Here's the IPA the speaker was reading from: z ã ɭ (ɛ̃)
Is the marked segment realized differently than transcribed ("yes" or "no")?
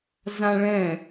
no